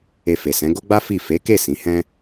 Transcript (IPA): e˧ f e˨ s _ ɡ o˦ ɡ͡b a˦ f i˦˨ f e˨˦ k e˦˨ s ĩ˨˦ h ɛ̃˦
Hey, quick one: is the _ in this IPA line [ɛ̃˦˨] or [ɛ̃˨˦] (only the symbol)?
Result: ɛ̃˨˦